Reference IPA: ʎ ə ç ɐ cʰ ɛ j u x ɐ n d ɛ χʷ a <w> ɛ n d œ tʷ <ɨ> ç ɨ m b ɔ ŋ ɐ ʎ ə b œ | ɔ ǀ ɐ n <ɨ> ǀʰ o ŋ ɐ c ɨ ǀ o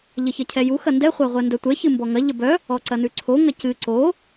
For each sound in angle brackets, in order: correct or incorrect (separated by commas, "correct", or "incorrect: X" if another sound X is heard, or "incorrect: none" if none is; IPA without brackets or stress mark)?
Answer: incorrect: ʁʷ, incorrect: ɛ, incorrect: ʉ